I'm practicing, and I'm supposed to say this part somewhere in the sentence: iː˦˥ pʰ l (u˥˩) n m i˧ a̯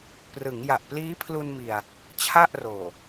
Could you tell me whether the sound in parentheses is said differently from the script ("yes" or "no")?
yes